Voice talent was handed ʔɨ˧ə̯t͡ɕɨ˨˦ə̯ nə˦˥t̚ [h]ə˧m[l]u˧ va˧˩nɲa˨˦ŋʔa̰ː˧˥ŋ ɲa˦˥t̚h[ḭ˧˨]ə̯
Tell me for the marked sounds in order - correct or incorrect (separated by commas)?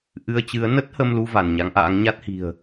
correct, correct, incorrect